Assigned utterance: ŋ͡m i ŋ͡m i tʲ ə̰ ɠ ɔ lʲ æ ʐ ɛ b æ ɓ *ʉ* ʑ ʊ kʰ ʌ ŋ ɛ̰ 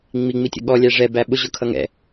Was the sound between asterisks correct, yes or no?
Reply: no